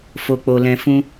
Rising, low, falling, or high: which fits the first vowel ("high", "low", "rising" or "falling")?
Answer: low